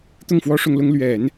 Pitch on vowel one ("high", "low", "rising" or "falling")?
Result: falling